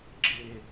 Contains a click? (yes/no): yes